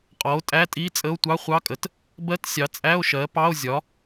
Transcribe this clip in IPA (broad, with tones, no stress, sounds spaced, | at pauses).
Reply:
qʼ ɔ˩˥ o̯ tʼ æ˧˥˧ tʼ i˧˥˧ t͡sʼ ə˧˥˧ o̯ tʷ ɑ˧˥˧ χʷ ɑ˧˥˧ kʼ ə˩˥ t | b ɜ˧˥˧ t sʲ ɑ˩˥ t͡sʼ æ˧˥˧ o̯ ʃ ɜ˩˥ p ɑ˧˥˧ o̯ zʲ ɒ˩˥